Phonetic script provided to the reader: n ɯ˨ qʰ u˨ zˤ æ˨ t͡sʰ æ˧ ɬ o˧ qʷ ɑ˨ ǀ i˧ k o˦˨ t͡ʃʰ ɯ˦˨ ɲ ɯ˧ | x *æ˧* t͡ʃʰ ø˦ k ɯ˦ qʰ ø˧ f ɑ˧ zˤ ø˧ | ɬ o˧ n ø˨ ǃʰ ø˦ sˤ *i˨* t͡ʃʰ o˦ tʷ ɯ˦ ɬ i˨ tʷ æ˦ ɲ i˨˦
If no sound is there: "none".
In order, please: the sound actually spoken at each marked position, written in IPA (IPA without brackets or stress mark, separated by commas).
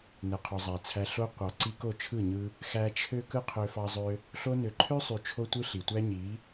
æ˧, y˨